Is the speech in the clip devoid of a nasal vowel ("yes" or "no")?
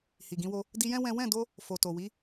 no